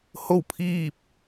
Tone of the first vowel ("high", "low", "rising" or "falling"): falling